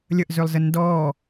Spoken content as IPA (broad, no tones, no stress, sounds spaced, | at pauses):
lʲ ə ʔ z ø lˠ z ə n d ɔ